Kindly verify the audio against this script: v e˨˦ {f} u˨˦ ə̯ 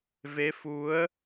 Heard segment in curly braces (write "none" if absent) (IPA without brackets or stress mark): f